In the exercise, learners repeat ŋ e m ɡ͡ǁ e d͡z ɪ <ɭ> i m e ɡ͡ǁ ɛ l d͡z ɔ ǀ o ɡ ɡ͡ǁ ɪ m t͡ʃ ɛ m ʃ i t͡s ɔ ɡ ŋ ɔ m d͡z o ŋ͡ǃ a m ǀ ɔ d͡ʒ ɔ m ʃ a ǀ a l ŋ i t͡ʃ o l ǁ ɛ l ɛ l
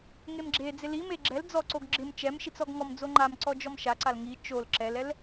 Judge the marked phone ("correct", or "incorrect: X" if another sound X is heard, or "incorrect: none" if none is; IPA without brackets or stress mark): incorrect: l